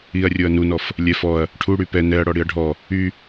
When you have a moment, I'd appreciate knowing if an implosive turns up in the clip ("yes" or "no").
no